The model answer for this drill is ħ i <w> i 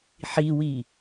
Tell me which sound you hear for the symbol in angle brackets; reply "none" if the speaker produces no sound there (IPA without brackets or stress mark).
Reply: w